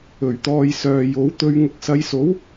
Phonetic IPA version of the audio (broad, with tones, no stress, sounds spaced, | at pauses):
ɵ˨˩ ɥ t̪ ɔː˧ j s œː˨ j o˨˥ w t̪ ɵ˧ ɥ ŋ ʊ˨˥ k̚ s ɐ˨˧ j s o˨˥ w